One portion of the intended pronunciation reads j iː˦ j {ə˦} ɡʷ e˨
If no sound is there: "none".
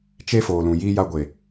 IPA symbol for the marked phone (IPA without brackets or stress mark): a˦